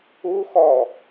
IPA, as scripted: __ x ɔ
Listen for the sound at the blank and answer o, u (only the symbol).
u